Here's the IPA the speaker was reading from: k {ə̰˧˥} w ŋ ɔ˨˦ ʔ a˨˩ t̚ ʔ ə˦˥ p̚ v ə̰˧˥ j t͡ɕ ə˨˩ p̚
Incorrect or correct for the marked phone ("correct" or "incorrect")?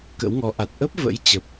correct